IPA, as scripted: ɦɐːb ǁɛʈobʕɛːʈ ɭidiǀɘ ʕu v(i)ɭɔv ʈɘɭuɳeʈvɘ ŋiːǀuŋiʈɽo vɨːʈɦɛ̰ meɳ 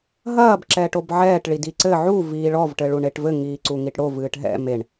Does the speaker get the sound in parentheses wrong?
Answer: yes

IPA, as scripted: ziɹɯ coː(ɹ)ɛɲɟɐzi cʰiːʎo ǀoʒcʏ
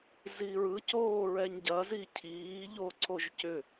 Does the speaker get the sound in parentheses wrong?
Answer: no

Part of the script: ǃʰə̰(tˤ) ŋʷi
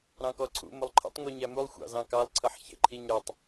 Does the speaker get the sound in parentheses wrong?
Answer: no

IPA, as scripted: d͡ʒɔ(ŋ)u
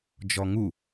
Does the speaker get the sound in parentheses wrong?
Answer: no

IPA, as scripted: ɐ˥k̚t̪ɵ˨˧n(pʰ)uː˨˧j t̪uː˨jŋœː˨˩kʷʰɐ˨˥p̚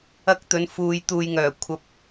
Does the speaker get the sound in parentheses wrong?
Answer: yes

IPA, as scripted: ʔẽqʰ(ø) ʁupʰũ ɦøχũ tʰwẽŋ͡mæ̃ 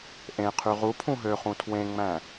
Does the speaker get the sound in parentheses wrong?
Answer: yes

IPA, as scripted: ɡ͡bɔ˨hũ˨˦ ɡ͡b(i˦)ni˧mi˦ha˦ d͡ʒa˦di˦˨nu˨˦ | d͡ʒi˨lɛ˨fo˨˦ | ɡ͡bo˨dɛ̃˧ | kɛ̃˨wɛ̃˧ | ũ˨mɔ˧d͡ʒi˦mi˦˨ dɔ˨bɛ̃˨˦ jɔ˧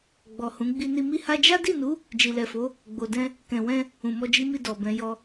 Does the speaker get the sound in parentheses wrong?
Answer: yes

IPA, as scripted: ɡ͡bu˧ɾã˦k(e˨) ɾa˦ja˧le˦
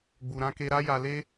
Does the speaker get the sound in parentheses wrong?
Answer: yes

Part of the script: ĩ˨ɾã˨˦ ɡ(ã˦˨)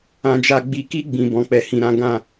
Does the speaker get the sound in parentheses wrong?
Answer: no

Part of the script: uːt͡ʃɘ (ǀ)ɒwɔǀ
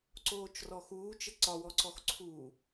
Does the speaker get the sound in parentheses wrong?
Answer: no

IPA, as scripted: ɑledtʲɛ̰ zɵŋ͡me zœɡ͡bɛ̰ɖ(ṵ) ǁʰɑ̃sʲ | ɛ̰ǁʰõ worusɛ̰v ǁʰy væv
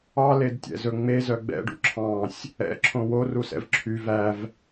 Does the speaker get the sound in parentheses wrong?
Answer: no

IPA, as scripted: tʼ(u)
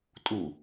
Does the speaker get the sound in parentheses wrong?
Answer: no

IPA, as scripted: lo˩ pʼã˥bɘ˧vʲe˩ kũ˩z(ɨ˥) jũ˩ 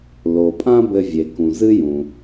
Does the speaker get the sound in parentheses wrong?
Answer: no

